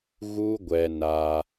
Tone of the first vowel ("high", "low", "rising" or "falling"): high